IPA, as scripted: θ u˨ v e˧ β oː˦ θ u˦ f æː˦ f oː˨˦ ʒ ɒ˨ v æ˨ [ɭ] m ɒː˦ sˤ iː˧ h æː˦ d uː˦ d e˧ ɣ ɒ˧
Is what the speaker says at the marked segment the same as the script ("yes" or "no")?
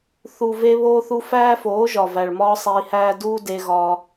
yes